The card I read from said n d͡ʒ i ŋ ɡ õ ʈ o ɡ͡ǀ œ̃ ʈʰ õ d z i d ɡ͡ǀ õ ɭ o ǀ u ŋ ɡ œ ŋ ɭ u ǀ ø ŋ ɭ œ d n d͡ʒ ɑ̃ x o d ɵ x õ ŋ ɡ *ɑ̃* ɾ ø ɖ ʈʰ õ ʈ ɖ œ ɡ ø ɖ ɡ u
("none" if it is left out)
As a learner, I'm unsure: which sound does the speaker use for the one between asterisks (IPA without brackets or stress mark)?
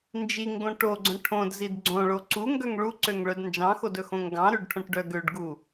ɑ̃